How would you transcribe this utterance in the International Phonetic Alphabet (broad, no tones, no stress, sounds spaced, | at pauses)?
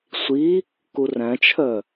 sʷ i | k u r æ̃ t͡ʃʰ œ